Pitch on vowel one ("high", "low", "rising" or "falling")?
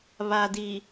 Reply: low